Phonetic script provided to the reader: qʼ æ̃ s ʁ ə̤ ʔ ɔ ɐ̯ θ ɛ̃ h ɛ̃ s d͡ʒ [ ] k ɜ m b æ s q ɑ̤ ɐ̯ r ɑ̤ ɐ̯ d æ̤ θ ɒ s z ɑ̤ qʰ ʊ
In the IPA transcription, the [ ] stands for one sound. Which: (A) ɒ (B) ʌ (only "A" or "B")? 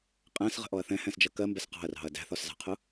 B